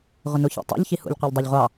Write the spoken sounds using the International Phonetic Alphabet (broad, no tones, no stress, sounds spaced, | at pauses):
ʁʷ ə n u ç ḭ tˤ ṵ ʎ ç i h ṵ ʎ qʷ æ ʎ dˤ ɑ ʎ ʁʷ ɑ